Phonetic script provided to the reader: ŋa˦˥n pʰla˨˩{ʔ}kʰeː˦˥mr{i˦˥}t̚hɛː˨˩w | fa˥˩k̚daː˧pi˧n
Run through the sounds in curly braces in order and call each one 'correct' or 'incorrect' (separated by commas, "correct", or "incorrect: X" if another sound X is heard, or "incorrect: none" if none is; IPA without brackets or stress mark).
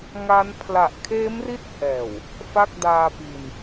correct, correct